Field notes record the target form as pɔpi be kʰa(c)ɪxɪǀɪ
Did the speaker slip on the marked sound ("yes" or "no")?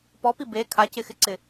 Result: no